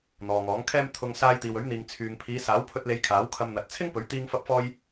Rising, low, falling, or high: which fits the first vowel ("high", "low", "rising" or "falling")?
low